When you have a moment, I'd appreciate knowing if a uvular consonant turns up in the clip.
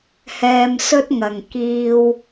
no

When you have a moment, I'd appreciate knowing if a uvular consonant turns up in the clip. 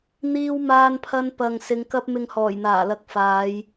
no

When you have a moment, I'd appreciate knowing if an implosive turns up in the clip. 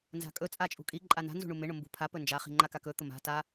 no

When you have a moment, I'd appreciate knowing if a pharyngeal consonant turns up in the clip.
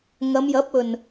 no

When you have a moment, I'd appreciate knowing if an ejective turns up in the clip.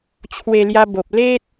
no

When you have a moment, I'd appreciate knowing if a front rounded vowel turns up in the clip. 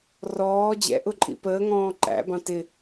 no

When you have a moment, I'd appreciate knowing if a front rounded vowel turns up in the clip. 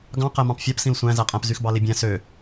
yes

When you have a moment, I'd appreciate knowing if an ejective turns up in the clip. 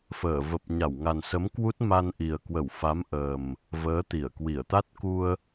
no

